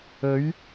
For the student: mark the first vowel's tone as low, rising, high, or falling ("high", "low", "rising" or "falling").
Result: rising